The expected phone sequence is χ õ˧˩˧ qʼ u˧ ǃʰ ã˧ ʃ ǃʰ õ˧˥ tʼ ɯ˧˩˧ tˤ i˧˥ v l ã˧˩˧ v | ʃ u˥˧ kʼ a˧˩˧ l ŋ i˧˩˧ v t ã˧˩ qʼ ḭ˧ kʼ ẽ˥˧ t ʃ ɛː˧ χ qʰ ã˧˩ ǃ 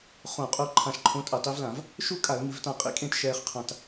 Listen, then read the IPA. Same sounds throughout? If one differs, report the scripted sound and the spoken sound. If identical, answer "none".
ǃ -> t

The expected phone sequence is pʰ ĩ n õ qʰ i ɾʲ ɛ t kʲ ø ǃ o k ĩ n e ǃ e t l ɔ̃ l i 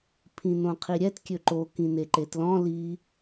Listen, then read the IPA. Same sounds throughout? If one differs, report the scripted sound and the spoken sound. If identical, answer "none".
none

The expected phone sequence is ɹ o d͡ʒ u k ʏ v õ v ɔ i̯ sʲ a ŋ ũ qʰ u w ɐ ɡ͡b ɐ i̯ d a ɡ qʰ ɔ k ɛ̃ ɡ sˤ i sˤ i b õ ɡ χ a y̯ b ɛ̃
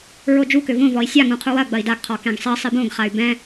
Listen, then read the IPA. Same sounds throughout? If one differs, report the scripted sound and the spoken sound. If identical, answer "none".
none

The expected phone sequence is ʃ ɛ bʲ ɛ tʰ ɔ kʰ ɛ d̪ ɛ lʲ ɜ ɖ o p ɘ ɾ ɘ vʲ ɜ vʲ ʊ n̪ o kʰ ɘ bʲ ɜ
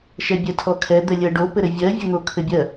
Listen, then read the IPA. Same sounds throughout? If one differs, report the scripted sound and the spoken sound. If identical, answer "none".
none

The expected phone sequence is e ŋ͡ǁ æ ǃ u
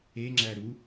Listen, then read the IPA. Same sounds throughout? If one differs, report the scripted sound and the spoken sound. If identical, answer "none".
ǃ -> ɾ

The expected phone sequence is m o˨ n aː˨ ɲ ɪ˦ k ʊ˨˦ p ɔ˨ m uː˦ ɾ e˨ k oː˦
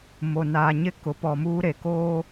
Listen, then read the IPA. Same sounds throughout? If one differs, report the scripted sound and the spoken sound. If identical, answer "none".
none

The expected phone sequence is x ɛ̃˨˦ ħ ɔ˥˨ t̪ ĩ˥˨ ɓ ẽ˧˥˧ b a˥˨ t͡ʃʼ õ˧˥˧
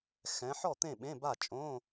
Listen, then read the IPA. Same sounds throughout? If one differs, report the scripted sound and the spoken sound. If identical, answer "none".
ĩ˥˨ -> ẽ˥˨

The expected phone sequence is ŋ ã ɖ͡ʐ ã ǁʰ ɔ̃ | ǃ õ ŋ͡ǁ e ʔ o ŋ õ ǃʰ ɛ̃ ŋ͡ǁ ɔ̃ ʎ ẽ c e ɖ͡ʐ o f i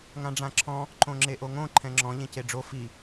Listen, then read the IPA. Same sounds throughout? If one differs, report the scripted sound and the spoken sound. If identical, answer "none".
none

